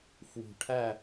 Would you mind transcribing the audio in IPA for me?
f w ṳ˨˩ ʈʰ æ˥˨

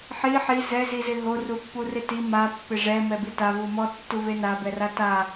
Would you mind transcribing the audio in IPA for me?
ħ i ħ i z ɛ z i z ɪ ɦ o r u pː u r ɪ t i m a pː ɪ ʐ ɛ m ɛ b i t a v u m ɔ tː u v e n a b ɛ r a t a

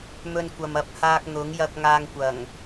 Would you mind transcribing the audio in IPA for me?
m ɵ˧ n kʷ ɐ˨ m ɐ˨ p̚ h aː˧ k̚ n̪ ʊ˨˥ ŋ j ɐ˧ k̚ ŋ aː˧ ŋ kʷ ɐ˨˩ ŋ

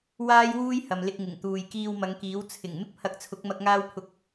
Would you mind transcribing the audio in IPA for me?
w aː˥ j w uː˥ j h ɐ˨ m l ɪ˧ k̚ ŋ ɪ˨˩ ŋ t̪ uː˨ j k iː˧ w m ɐ˨˧ ŋ k iː˨˥ w t͡sʰ ɪ˨˩ ŋ m ɪ˥ k̚ pʰ ɐ˨˥ k̚ t͡sʰ ʊ˨˥ k̚ m ɐ˧ k̚ ŋ aː˥ w pʰ ʊ˧ k̚

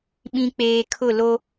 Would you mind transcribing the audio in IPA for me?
ɓ ĩ˨ k͡p eː˨ kʰ ʊ˦˨ l o˦

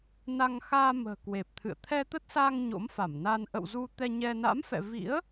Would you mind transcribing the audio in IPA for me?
n a˧ ŋ x aː˧ m ə̤ː˨˩ k w e˨˩ p̚ t̪ʰ ɨ̰˧˨ ə̯ t̪ʰ ɛ˧ t̪ ə˦˥ t̚ s aː˧ ŋ ɲ o̰˧˥ m f a˧˩ m n a˧ n ʔ ə̰˧˨ w z u˧ t̪ ɛ˧ ɲ ɛ˧ n a̰˧˥ m f ɛ̰˧˨ v ḭ˧˥ ə̯

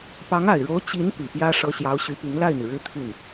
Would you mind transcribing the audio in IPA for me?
p ɑ˧˥ ŋ a˨˩ ɪ̯ ɻ o˧˥ ʊ̯ t͡ɕ i˧˥ n p i˨˩ p j ä˥ ʂ ɤ˥ ɕ j ɑ˧˥ ʊ̯ ɕ y˧˥ p i˧˥ ŋ l a˥˩ ɪ̯ n̪ i˩ ɻ ɻ̩˥ t̪ʰ y˥˩ n

